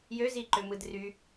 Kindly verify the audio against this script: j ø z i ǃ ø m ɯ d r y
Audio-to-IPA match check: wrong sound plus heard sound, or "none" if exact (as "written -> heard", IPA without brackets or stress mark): none